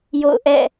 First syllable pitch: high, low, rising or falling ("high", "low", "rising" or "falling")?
falling